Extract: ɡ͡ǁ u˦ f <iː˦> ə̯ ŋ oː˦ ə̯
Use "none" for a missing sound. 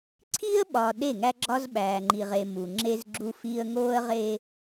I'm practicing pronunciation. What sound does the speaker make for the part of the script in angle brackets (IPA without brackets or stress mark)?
iː˦